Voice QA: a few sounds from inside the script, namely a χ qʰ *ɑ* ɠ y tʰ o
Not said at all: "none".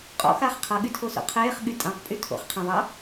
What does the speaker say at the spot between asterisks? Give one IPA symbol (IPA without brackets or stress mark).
ʌ